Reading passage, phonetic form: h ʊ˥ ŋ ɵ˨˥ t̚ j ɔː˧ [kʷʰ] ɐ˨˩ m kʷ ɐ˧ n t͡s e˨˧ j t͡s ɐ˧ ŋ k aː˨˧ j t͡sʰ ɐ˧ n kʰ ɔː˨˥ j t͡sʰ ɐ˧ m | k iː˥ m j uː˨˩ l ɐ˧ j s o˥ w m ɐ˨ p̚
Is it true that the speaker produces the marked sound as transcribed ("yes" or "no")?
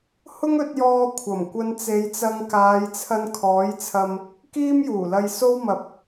yes